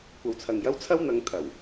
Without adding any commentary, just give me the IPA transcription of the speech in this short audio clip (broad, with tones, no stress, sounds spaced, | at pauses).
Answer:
kʷ ɐ˨ w t͡sʰ ɐ˨ ŋ j ɐ˥ w t͡sʰ ɐ˥ w n̪ ɐ˨˧ ŋ t̪ʰ ɐ˨˩ w